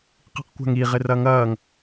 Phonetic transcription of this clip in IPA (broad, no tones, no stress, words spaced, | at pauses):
qi̤qkʷa̤ŋi ʁɪrɐŋɐːŋ